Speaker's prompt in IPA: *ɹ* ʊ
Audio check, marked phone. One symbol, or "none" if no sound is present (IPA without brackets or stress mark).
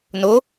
n